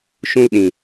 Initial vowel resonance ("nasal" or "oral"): nasal